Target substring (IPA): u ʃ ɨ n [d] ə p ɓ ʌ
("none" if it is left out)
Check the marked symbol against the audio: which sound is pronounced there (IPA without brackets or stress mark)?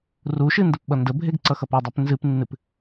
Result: d